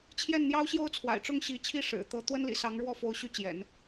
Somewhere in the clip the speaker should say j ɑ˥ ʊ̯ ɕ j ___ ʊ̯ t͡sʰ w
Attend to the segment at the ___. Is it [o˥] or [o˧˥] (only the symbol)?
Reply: o˥